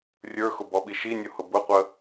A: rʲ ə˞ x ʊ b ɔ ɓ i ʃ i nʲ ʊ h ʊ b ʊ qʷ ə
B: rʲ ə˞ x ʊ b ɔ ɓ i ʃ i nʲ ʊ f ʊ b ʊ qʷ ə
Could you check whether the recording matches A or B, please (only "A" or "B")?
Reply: A